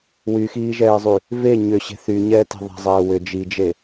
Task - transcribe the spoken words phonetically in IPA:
w y x iː ʒ ɛː zˤ y | v e ɲ ʏ ɕ e̤ θ y ɲ ɛː t e̤ ðˤ ɛ̤ zˤ ɛː w ʏ d͡ʒ i d͡ʒ e

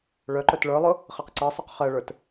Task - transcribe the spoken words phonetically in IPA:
ɭ œ ǃ œ t ɭ ə˞ lˠ ʊ | χ ɜ q ǀ ɜ sˤ œ q χ ɜ ɭ ə˞ t

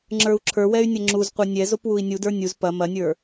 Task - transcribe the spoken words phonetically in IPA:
ŋ͡ǁ ə˞ u̯ ǁʰ ə˞ w ɛ y̯ nʲ ɐ ŋ͡ǁ u z qʷ ə˞ nʲ ɛ z o p w u i̯ nʲ u d ə˞ nʲ u z p ɐ m ɐ nʲ ə˞

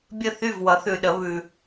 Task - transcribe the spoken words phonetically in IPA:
bʲ ə˥˩ θ y˥˩ v w ʌ˩˥ θ ʉ˨ ɗ ə˩˥ β ʉ˨

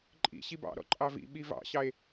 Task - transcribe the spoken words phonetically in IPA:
ǃʼ ḭ ɕ i b ɑ̰ ɾ ɔ̰ ǃʼ ɑ v ḭ ɓ i v ɑ̰ ɕ ɑ e̯

